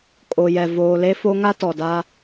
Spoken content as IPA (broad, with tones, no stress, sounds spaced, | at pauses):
kʼ o˨ j ɛ˨ v oː˨ l e˦ f o˦ ŋ a˦ t ɔ˨ d a˦